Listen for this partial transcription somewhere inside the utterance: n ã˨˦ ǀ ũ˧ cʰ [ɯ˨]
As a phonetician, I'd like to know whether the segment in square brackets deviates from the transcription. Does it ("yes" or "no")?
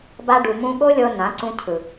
no